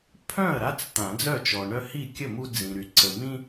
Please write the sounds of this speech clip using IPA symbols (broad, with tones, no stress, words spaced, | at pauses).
pʰœ̃˥˩ɐ̯ɾa˦t͡s t̪ã˨˩˦d͡zœ˥˩t͡ʃɔ˨ ɳœ˦hi˥˩kʲə˥˩mu˦ d͡zĩ˨ɾy˨ ǀə˨mĩ˦